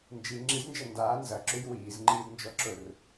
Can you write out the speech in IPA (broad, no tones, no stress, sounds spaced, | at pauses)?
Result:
n d͡ʒ i ŋ͡ǁ i z n d͡ʒ ɐ n d aː n z ɐ ǁ ʉ j w iː z ŋ͡ǃ iː d n d͡ʒ ɔ ǁ ʊ r